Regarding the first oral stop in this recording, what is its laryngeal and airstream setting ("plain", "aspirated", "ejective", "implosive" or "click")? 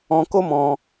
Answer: plain